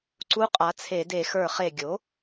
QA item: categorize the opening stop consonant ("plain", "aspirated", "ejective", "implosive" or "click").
click